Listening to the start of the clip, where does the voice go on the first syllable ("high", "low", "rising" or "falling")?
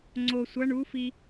low